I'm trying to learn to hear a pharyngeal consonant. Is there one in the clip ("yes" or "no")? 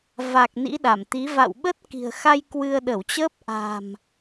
no